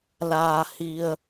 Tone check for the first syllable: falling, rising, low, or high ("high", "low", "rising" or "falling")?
low